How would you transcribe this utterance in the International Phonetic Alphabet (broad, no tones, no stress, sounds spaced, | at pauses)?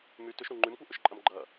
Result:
m y t ʏ ʃ ɾ u ŋ͡ǃ y m kʷ ɛ ʔ ʏ ʃ ǃʼ ɐ m ɡ͡ǃ ɐ